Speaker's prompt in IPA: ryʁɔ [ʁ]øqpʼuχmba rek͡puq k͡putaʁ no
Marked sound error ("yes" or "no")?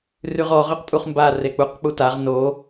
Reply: no